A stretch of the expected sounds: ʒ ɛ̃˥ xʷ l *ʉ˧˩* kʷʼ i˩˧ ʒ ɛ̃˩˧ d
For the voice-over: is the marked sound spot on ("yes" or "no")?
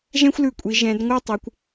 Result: yes